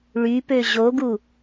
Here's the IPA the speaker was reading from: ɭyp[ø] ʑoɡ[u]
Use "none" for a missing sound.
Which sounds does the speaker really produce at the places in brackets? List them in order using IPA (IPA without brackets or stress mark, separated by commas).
ø, u